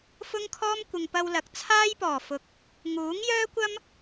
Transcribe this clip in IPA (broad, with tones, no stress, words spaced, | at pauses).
fʊ˥ŋkʰɔː˥m kʷɪ˨ŋpɐ˧wlɐ˨˥k̚ t͡sʰaː˥jpɔː˨˩ fʊ˨k̚ | ŋuː˨˥ŋjœː˥kʷɐ˥m